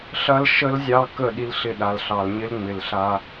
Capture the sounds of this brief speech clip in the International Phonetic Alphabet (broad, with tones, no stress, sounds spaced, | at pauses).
ɬ ɐ˦ l ʃ ə˦ l zʲ ɑ˦ k ə˦˨ ɗ i˦ l ɬ ɪ˦˨ ɗ a˨ l ɬ ɑ˨ l ɲ ɪ˦ l ŋ͡m ɪ˨ l ɬ a˦